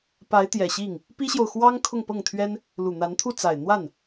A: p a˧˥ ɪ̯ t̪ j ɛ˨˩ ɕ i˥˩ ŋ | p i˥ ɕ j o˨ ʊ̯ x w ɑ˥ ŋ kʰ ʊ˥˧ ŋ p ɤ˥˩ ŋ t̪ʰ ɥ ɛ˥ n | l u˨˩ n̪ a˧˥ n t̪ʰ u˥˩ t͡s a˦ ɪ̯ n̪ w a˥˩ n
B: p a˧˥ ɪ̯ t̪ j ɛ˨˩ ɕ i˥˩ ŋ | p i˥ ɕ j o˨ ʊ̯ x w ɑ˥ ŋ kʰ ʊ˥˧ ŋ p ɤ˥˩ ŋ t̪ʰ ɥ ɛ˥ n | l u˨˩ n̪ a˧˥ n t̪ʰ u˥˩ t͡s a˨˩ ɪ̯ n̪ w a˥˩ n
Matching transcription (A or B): B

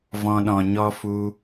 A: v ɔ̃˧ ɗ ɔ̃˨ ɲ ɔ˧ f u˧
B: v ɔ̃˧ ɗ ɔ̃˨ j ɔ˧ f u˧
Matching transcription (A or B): A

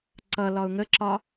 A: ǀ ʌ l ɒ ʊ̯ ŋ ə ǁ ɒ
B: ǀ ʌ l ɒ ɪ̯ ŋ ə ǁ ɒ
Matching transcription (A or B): A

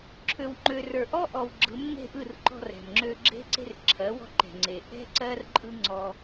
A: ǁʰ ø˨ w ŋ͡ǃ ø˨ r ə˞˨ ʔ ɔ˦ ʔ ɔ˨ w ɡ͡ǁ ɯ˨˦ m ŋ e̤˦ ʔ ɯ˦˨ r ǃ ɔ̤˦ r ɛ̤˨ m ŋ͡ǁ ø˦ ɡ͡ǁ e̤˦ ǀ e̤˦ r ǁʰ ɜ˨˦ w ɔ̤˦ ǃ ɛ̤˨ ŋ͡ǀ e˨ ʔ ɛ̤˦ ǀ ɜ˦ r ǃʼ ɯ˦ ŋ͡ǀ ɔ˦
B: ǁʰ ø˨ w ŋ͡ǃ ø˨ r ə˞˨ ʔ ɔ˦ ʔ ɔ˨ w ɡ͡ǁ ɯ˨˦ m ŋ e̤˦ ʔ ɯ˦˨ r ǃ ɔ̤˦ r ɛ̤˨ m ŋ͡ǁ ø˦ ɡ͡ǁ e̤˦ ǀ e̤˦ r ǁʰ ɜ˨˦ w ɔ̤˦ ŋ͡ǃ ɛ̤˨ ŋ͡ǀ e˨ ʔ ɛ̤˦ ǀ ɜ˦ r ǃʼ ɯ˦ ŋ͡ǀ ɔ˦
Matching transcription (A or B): A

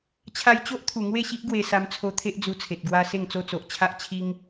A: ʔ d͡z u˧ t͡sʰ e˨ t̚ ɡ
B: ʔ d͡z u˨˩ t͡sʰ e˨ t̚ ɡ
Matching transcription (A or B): A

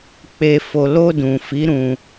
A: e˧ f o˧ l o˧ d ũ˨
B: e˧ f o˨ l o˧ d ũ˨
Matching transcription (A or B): A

